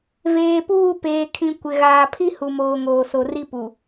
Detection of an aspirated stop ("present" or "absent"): present